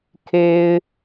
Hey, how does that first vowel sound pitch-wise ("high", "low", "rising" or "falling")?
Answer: high